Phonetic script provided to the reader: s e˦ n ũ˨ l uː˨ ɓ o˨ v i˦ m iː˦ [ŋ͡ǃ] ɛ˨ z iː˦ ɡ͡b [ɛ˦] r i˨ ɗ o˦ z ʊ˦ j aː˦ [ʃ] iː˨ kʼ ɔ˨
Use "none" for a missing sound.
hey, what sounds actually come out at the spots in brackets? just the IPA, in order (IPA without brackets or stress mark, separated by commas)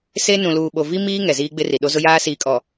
ŋ, ɪ˦, s